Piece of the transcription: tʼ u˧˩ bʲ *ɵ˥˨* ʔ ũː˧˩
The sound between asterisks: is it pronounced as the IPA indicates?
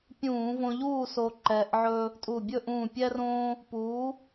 yes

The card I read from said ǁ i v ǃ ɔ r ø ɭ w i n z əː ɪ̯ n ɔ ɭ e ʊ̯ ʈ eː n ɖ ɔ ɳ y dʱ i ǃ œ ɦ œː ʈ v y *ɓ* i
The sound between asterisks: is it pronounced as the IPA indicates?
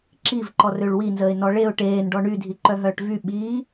yes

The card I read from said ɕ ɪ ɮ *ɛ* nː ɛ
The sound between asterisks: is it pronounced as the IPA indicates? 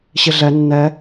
yes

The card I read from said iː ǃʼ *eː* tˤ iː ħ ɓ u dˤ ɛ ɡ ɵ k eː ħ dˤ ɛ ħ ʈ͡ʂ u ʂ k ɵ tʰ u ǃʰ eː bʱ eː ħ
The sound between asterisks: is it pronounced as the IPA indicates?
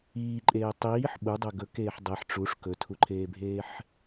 yes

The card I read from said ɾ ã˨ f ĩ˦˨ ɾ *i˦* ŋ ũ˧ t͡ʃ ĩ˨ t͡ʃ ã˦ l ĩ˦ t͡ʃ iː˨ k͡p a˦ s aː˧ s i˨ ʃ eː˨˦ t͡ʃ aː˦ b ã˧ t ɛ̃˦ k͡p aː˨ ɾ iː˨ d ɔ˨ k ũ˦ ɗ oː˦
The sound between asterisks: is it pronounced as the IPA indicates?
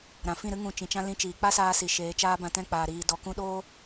no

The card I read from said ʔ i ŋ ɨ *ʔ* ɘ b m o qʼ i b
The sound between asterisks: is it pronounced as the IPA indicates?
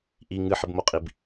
no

